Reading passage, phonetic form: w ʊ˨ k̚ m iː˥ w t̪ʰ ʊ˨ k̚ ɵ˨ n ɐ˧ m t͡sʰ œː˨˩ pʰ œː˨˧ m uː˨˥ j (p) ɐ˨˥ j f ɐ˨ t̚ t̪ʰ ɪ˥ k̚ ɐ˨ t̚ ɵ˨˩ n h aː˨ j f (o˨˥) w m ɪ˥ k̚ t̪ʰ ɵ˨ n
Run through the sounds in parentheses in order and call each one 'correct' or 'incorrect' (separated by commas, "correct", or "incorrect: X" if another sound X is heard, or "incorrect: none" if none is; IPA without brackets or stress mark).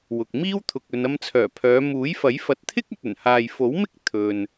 incorrect: f, correct